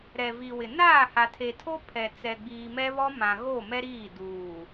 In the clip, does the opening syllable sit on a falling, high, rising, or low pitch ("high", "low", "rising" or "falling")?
low